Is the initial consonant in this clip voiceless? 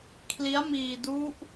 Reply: yes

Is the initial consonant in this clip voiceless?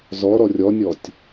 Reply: no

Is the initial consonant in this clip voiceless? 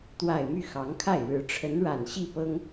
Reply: yes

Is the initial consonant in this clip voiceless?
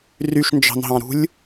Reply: no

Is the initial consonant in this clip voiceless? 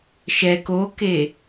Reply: yes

